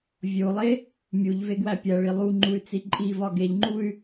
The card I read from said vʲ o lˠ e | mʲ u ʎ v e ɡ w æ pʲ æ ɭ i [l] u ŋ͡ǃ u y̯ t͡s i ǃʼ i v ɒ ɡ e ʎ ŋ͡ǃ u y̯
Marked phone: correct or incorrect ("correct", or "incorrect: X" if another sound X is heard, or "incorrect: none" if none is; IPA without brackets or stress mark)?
incorrect: lˠ